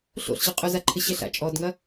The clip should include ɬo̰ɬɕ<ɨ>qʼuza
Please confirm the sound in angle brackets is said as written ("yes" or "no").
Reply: yes